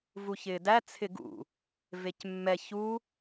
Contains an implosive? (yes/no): no